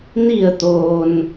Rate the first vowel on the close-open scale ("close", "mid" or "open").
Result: close